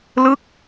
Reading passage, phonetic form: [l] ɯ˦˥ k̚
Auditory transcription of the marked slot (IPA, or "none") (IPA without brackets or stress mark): l